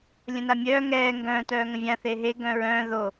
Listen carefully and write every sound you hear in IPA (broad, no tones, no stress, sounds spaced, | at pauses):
lʲ ə̃ n a mʲ œː ŋ ɛː ŋ ɡ œ̃ː t œː ŋ ə̃ vʲ ã θ e ɦ e ɡ œ̃ ɹ œ̃ː ð o